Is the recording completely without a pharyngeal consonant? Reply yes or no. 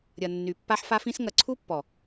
no